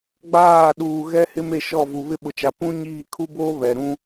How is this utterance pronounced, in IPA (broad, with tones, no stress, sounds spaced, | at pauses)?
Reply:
ɡ͡b aː˦˨ ɗ uː˨ ɣ ɛ˦ h ɪ˦ m e˦˨ ʃ ɔ˦˨ v u˨ β ɪ˦ ɓ ʊ˨ t͡ʃ a˨ p ũ˦ ɲ iː˦˨ kʰ u˦ b oː˦ β ɛ˨ ɾ ũ˦